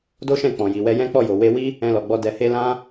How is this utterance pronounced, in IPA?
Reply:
d o˦ ʃ ɛ̃˦˨ k͡p ɔ̃˨ j i˨ w ɛ˧ j ɛ̃˦ k͡p ɔ˦˨ j o˨ w e˧ w i˦ | ɛ̃˧ l ɔ˨ ɡ͡b ɔ˧ d ɛ˨ h e˧ l ã˧

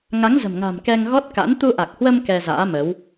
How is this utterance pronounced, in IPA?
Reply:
ŋ a˨˦ ŋ z ə̤˨˩ m ŋ a̤˨˩ m k ɛ˧ ŋ ɣ ɔ˦˥ t̚ k a̰˧˥ n t̪ u˧ ʔ a˨˩ k̚ h w ə˧ m k ɛ˧ z a̰ː˧˥ m ə˨˦ w

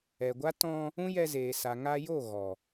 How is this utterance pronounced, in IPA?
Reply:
ɛ˨ ɡʷ a˦ t ɔ̃˧ | ũ˦ j ɛ˧ z eː˨ s a˨ ŋ a˧ j o˦˨ ɣ ɔ˨

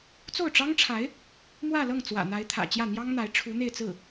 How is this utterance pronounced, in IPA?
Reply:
t͡s o˥˩ ʊ̯ ʈ͡ʂ ɑ˥ ŋ ʈ͡ʂʰ a˧˥ ɪ̯ | m w ä˥˧ l ɤ˥˩ ŋ t͡s w ä̰˨˩ n̪ a˧˥ ɪ̯ t̪ʰ ä̰˨˩ t͡ɕ j ä˥˩ n̪ j ɑ˥ ŋ n̪ a˧˥ ɪ̯ ʈ͡ʂʰ u˧˥ n̪ e˥˧ ɪ̯ t͡s ɹ̩˥˩

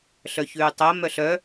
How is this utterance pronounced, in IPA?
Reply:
ɬ œ ç ʉː tˤ ɜ m œ ɬ œ

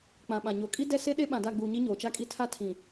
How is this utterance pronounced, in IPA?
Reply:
k͡p ã˨ ɓ ã˨ ɲ o˨ kʼ i˦ d ɛ˦ s e˦ ɗ e˦ ɓ ã˨ d a˦˨ ɡ͡b uː˨ ɲ i˦ ɲ oː˨ t͡ʃ a˦ kʼ i˦ tʰ a˦ tʰ ĩ˨

